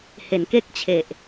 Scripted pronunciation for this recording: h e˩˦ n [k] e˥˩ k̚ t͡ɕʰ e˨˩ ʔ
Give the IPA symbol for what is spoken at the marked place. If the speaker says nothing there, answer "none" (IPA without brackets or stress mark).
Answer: k